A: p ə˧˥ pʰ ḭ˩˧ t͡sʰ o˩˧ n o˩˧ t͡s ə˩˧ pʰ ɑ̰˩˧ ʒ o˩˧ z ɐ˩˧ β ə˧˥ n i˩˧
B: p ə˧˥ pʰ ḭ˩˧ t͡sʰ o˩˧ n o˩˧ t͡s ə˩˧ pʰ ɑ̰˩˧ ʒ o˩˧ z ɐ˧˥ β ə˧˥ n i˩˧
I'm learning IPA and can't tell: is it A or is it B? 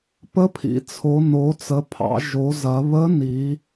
A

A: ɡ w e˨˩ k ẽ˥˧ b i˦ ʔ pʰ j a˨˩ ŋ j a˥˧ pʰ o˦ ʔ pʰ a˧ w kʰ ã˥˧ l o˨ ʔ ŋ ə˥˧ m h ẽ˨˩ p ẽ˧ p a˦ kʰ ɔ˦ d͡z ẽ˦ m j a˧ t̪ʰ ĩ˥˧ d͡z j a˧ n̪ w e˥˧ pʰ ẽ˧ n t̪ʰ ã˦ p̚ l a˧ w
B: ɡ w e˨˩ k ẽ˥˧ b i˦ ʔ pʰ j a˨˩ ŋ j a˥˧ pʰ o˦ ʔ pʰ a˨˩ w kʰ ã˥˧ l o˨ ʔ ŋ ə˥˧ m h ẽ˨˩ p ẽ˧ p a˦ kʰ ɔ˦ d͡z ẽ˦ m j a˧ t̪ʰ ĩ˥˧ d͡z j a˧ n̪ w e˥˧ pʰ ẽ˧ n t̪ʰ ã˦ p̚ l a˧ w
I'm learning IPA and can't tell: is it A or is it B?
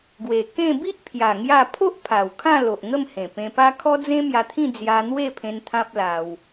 B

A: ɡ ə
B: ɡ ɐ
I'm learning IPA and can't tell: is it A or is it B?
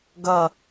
B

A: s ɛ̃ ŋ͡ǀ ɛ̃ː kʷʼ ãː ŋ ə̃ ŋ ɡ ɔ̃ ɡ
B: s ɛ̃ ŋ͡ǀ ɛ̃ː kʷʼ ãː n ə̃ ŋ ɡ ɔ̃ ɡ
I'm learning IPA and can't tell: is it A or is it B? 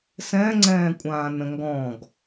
B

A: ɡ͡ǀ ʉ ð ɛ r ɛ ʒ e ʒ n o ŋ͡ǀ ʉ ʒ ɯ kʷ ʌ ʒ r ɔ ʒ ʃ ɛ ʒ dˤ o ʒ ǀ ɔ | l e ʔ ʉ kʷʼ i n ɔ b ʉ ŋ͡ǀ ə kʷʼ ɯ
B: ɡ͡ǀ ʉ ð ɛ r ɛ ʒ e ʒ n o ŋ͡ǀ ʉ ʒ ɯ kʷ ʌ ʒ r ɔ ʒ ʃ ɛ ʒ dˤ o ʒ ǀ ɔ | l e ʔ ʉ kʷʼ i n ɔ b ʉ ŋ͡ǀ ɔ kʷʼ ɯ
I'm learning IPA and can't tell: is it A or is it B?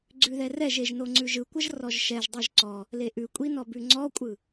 B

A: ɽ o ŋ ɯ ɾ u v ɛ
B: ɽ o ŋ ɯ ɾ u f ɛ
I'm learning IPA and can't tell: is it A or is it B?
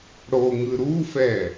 B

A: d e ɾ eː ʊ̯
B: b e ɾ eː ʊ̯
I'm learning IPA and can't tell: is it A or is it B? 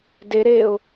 A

